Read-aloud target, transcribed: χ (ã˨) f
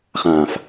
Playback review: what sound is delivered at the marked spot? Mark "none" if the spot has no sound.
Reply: ã˨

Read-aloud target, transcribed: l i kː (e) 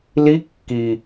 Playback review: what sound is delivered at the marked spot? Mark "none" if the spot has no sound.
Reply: i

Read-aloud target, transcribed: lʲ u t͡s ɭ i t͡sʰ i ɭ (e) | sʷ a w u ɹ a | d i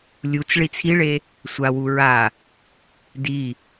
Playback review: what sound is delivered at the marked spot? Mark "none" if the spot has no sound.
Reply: e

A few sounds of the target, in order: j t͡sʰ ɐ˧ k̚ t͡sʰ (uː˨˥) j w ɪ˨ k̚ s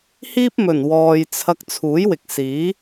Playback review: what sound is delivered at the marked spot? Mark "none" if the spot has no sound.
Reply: uː˨˥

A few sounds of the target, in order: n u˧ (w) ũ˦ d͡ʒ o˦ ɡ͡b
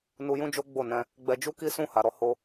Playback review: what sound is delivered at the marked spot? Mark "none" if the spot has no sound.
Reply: j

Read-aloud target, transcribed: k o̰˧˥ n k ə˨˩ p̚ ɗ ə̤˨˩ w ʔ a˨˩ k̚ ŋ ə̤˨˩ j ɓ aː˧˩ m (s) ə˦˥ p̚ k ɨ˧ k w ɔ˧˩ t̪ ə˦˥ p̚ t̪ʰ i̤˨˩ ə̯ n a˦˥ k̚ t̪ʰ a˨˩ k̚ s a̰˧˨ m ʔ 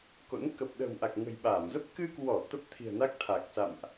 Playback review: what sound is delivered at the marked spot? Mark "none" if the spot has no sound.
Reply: z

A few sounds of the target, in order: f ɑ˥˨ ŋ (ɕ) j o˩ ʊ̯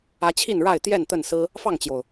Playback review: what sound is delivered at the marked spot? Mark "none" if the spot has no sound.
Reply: t͡ɕ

